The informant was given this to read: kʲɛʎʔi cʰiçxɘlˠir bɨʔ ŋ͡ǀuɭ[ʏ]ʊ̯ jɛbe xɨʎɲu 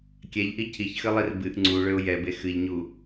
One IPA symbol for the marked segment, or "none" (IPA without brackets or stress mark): ʏ